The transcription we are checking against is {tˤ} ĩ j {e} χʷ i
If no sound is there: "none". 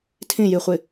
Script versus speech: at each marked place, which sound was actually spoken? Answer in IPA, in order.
tʰ, i

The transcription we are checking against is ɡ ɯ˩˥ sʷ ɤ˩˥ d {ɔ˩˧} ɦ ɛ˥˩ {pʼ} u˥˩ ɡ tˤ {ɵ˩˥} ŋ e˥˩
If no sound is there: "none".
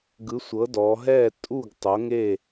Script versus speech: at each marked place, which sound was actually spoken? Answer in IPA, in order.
ɔ˩˧, tʼ, o˩˥

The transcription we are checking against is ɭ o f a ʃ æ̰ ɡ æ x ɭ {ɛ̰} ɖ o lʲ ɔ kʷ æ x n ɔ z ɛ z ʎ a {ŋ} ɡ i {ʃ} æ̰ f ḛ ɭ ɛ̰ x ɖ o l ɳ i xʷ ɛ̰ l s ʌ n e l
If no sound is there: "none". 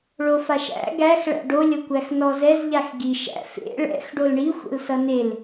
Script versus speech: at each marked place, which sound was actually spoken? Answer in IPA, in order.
æ̰, x, ʃ

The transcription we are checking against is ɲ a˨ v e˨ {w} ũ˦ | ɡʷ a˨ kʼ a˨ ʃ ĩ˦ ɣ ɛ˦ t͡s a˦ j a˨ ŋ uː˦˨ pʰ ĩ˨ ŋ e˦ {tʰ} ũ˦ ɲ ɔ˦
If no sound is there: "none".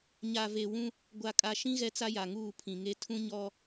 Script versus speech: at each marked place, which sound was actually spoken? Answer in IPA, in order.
w, tʰ

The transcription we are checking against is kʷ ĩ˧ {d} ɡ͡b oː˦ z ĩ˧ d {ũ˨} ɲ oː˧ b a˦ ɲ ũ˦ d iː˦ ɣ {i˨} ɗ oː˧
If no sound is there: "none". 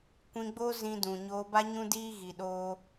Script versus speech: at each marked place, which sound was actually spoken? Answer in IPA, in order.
none, ũ˨, i˨

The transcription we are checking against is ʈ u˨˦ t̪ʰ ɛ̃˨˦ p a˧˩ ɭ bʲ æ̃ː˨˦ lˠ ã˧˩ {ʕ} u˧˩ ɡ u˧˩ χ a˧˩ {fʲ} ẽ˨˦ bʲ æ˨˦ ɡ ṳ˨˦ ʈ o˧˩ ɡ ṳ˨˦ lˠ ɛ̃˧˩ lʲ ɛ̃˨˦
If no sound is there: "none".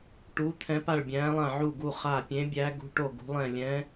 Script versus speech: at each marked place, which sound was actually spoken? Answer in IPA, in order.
ʕ, pʲ

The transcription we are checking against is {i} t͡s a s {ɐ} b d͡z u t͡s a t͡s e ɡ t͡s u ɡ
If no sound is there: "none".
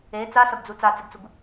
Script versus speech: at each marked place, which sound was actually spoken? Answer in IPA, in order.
e, ɐ

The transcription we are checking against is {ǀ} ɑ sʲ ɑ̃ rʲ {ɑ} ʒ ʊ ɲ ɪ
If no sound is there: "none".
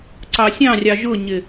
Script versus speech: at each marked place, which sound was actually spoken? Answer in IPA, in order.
ǀ, ɑ

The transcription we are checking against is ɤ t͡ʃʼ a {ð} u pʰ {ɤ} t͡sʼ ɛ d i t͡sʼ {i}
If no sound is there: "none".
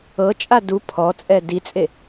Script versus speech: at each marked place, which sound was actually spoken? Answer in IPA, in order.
d, ɔ, e

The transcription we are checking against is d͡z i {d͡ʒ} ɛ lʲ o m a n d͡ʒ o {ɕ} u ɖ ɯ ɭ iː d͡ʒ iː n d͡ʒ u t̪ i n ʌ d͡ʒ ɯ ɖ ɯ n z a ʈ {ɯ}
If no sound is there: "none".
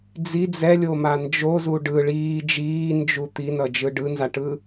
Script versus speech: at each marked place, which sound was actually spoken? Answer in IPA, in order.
d͡z, z, ɯ

